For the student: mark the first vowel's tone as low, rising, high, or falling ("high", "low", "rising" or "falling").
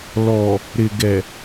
low